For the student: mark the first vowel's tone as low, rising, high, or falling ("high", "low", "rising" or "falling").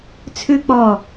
high